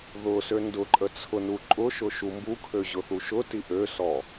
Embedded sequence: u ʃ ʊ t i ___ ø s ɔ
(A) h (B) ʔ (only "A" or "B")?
B